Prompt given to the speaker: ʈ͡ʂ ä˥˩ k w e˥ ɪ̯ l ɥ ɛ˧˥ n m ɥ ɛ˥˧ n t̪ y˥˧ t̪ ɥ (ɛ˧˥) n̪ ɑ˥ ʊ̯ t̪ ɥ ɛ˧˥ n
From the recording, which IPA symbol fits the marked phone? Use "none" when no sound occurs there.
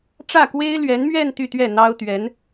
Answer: ɛ˥˩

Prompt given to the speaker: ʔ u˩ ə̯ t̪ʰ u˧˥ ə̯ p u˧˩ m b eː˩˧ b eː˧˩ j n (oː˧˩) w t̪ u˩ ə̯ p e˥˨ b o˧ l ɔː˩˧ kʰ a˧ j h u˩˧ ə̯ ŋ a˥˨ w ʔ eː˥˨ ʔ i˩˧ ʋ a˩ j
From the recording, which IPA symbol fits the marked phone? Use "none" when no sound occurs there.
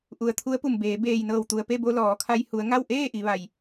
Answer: ɤː˧˩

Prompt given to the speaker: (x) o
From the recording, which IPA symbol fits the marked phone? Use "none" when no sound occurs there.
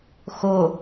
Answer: x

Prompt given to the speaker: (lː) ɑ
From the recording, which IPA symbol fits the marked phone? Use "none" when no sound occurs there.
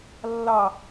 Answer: lː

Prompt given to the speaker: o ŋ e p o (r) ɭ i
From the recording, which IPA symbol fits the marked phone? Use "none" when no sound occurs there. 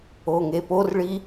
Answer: r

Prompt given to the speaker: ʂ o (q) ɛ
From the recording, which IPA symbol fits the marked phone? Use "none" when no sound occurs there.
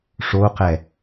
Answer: q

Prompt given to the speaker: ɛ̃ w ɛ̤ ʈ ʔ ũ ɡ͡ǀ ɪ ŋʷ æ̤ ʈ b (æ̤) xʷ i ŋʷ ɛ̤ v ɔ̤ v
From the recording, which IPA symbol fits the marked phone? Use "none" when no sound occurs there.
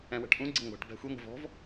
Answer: æ̤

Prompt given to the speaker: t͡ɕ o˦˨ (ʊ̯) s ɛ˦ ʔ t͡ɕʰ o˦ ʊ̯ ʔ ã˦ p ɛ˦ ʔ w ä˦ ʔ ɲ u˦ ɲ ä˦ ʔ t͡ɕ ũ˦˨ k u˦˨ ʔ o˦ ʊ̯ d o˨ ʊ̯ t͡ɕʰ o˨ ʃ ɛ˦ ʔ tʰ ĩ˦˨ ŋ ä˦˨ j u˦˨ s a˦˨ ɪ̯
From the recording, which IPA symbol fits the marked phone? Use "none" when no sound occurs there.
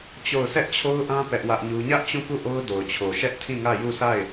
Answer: ʊ̯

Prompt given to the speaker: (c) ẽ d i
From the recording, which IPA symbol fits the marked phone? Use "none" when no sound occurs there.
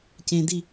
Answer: c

